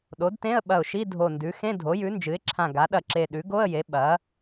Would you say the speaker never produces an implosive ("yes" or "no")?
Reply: no